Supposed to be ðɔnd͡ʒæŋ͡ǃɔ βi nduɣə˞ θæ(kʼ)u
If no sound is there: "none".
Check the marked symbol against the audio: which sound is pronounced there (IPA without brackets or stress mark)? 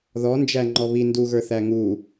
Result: ŋ